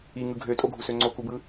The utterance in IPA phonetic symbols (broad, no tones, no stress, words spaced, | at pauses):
iŋɯ ɡʱøtʼoɡʱusø ŋ͡ǀokubɯ